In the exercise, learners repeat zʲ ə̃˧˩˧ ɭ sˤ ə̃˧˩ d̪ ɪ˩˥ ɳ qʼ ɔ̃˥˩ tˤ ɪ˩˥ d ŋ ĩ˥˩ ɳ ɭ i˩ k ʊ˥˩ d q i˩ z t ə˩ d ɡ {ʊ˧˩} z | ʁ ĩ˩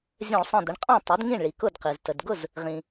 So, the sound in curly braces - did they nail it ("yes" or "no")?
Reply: no